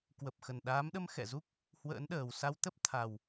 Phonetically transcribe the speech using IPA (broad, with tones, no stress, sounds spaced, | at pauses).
k w ə˨˩ p̚ x ə˨˩ n ɗ aː˨˦ m ɗ ə˧ m x ɛ̰˧˨ z u˦˥ k̚ | h w ə̰ː˧˥ n ɗ əː˨˩ w s a˧ w t̪ ə˦˥ p̚ t̪ʰ a˨˩ w